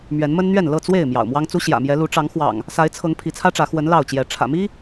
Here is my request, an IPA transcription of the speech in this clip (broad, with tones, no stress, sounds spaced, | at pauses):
m ɥ ɛ˨˦ n m ə˦ n n̪ ɥ ɛ˥˨ n l ɤ˥˨ t͡s w e˥˨ ɪ̯ m j ɑ̰˨˩ ʊ̯ m w ɑ˦ ŋ t͡s u˦ ɕ j ä̰˨˩ m j ɛ˨˦ l u˨˦ ʈ͡ʂ ɑ˨˦ ŋ x w ɑ̰˨˩ ŋ | s a˨˦ ɪ̯ t͡sʰ ɤ˨˦ ŋ pʰ i˨˦ t͡sʰ ä˦ ʈ͡ʂ ä˨˦ x w ə˨˦ n l ɑ˥˨ ʊ̯ t͡ɕ j ɛ˨˦ ʈ͡ʂʰ ä̰˨˩ m i˦